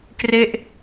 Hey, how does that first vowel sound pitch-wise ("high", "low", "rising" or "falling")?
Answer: falling